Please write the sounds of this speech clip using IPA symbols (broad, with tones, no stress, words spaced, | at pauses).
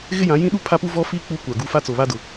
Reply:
ɣɪ˦jã˨˦ jĩ˦ɗu˦˨pʰa˦pu˦ vɔ˦fi˦ k͡pu˦kʷa˨ɡu˦ fa˦t͡so˨βa˦dʊ˨